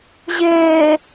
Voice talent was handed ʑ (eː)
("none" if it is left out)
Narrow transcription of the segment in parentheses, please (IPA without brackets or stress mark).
eː